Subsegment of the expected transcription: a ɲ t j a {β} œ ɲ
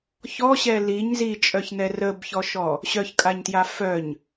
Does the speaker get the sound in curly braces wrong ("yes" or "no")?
yes